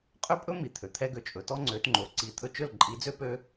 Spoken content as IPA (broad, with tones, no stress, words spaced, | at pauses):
qʼø˦pʼɵ˦ mi˨t̪ʰø˨ t̪ʰɛ˧ɡø˨ t͡ʃʼɵ˨tɔ˦ŋ͡ǀø˨˦t ŋ͡ǃo˨ǀi˧ t̪ʰɵ˧t͡ʃɵ˦˨l ǃʼi˨˦d͡zø˦ pø˦